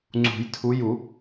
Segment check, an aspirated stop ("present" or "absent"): present